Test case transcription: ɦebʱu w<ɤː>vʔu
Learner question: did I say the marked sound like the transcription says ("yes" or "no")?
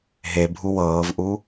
yes